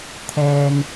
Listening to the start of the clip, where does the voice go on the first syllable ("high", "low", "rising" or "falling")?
low